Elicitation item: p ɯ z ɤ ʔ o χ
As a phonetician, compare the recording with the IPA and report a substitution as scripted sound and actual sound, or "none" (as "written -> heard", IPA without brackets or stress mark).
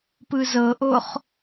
none